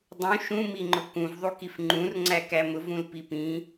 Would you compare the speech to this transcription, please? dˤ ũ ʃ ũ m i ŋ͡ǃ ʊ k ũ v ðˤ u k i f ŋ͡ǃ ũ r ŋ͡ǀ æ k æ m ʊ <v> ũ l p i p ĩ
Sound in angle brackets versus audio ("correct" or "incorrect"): correct